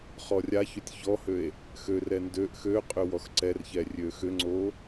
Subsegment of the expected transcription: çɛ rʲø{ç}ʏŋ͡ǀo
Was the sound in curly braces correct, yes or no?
no